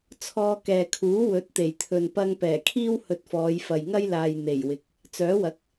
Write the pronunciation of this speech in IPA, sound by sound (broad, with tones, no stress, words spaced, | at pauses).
t͡sʰɔː˧kɛː˨kʰuː˨˥ wɵ˨˥t̚t̪e˨˩jt̪ʰɵ˨n pɐ˧ŋpɛː˨˩kʰiː˥w hɵ˧t̚fɔː˨˧jfɐ˨j ŋɐ˥jlaː˨j n̪e˨˩jwɪ˨k̚ | t͡sœː˨˥wɐ˨˥k̚